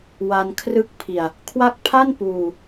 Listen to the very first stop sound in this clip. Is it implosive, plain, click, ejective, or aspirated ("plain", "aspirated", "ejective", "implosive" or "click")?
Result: aspirated